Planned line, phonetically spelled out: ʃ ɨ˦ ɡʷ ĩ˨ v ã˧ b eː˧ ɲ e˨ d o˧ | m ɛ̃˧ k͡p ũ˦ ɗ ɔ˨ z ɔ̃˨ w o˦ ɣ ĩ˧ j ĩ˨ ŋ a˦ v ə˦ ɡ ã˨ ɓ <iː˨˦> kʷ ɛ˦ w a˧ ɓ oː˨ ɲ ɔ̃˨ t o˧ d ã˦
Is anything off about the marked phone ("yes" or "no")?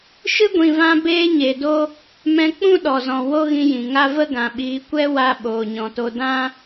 no